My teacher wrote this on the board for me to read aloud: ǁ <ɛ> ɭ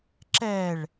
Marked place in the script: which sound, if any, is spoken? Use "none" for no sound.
ɛ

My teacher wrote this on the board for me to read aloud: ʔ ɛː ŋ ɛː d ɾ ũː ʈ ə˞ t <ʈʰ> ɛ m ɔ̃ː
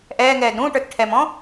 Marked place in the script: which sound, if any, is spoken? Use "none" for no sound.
ʈʰ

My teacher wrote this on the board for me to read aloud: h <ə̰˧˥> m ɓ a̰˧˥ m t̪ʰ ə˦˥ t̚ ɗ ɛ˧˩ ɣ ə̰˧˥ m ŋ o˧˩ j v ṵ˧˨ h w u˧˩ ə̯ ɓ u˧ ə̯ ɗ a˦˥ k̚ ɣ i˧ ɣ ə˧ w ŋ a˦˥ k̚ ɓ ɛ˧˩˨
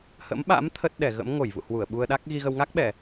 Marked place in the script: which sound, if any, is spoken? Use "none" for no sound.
ə̰˧˥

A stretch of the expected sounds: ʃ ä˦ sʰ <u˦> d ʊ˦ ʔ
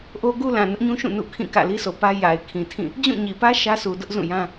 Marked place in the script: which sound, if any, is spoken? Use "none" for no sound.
u˨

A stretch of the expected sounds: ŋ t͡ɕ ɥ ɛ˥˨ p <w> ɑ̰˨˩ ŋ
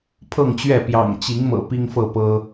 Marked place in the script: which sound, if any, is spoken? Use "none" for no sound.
j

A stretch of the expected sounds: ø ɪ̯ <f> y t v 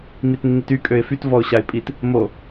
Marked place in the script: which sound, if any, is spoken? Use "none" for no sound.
f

